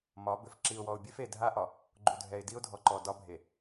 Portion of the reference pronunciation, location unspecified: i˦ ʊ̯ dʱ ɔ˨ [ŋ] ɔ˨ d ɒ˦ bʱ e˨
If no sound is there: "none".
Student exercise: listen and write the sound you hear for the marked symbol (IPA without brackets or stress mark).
ǃ